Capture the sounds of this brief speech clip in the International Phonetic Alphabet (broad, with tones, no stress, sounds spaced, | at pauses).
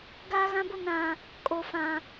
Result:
ɡ aː˦ ɣ ã˦ b ʊ˦ n ã˨ | kʼ o˨ f ã˨